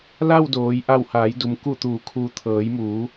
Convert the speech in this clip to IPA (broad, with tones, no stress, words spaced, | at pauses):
la˥˨wdoː˩˧j ʔa˧˩whaː˩˧jdu˩m ku˧˩t̪uː˩˧kʰuː˩t̪ʰɤː˩˧j muː˩˧